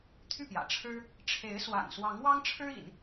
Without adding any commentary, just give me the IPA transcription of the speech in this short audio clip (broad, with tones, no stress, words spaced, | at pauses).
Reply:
t̪ʰy˥˩pjä̰˨˩ ʈ͡ʂʰɻ̩˥ | ʈ͡ʂʰe˧˥ɪ̯swa̰˨˩n swɑ˧˥ŋwɑ˥ŋ ʈ͡ʂʰɻ̩˥ḭ˨˩˦n